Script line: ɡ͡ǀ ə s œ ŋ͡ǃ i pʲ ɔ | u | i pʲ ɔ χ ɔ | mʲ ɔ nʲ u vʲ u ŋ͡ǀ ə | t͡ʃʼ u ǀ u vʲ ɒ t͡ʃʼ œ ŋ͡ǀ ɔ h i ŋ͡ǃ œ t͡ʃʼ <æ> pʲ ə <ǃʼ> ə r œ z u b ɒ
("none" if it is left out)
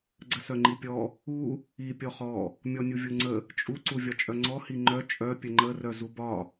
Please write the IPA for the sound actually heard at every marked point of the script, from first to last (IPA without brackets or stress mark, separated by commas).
œ, ŋ͡ǃ